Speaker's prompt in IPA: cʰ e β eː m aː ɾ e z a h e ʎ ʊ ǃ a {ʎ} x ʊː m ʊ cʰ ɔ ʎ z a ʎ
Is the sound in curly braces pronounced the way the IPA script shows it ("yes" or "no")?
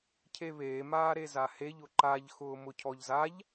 yes